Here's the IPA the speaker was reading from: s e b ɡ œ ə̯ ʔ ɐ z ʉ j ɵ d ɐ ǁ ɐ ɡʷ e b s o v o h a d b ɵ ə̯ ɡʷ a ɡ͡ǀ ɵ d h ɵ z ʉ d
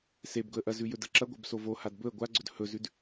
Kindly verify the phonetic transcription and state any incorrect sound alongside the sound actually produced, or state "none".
œ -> ɵ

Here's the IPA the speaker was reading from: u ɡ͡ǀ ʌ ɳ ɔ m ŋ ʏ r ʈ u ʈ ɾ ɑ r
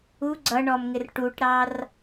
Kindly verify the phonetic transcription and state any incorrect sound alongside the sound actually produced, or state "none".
ʏ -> ɪ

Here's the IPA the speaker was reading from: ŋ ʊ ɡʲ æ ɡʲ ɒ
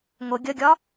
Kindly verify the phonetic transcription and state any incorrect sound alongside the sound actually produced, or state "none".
æ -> ə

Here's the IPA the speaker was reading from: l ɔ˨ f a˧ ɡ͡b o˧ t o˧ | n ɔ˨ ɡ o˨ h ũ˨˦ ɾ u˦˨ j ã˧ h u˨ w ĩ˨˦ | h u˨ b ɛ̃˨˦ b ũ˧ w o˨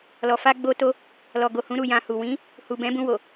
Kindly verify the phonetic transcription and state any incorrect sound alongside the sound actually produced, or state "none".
n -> l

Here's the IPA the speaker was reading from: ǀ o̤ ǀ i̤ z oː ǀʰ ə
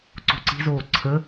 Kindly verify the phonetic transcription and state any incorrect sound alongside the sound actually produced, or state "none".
none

